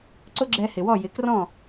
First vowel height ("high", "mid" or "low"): high